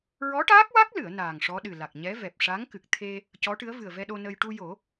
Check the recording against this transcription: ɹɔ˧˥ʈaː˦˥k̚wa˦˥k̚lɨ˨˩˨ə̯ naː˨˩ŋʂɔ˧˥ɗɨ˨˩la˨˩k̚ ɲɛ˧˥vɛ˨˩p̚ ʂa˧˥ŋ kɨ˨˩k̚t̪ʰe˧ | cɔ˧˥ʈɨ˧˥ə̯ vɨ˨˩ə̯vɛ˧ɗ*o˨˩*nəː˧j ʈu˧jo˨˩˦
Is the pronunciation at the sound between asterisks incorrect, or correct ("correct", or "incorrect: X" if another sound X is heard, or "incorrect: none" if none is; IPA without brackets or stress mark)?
incorrect: o˧